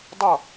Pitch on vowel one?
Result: falling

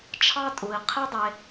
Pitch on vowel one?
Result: high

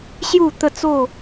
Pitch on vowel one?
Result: falling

